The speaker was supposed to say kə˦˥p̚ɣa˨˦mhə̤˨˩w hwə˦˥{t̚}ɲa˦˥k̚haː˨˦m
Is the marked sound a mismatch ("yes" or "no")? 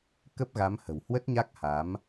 no